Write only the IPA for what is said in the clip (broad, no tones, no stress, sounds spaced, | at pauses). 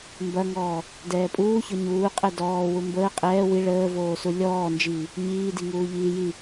m b ɐ ŋ ɔː | d ɛː pʼ uː ç ɔ ɲ uː qʼ ɛ d ɔː w u m b əː qʼ ɛː w i ɭ əː v oː s u lʲ ɔː n d͡ʒ iː | ɲ iː d i ŋ uː ʎ iː j i